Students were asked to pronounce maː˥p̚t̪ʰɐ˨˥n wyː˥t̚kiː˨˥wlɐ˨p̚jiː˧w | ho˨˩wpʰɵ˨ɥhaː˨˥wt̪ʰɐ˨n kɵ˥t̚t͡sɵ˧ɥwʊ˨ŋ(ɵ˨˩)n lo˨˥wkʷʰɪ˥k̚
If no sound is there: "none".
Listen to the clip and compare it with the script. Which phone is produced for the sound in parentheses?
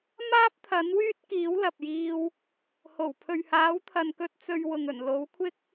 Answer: ɵ˨˩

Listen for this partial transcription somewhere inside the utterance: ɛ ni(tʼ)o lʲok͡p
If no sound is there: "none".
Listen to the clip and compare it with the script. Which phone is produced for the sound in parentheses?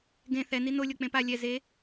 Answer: n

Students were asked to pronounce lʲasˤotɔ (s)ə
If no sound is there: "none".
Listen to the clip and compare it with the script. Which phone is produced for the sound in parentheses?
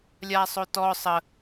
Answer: sˤ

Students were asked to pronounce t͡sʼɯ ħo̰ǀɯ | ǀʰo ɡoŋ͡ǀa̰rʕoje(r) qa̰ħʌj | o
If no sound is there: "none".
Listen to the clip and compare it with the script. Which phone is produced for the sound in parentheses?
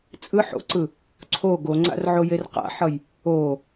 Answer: r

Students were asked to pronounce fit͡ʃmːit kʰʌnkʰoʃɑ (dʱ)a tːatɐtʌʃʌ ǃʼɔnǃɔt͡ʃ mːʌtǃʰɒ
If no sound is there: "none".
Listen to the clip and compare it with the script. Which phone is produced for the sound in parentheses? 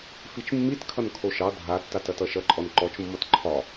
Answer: dʱ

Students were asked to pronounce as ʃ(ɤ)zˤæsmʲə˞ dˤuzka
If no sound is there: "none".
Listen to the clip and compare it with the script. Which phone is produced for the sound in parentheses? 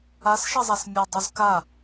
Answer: ɤ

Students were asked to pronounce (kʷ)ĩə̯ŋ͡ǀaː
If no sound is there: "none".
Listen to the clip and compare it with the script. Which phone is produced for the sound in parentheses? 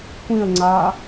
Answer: kʷ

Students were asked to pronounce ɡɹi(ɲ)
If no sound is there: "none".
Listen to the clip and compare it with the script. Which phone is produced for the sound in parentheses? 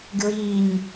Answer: ɲ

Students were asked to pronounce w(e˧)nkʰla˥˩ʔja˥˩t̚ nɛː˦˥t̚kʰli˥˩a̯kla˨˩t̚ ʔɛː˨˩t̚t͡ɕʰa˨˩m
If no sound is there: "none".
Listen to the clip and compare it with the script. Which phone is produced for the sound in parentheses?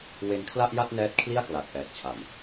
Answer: e˧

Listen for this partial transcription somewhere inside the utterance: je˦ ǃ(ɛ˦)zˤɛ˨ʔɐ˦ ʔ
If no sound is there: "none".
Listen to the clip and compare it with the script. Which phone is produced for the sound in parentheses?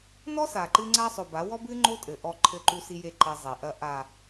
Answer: ɛ˦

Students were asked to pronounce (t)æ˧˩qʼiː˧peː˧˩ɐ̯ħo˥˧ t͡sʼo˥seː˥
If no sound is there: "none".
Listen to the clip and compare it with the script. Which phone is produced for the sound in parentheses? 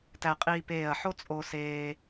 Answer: t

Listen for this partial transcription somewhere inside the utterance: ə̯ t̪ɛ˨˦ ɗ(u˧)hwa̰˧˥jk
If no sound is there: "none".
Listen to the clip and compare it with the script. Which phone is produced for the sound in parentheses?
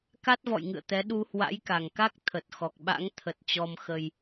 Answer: u˧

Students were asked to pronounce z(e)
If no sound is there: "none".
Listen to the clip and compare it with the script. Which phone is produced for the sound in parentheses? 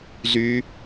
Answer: y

